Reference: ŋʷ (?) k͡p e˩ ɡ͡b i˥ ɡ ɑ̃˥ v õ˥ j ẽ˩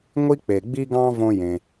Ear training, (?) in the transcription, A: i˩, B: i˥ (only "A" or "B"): B